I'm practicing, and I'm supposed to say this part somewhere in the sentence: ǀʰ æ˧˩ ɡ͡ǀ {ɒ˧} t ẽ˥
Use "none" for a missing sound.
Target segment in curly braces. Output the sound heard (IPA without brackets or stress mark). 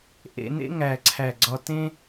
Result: ɒ˧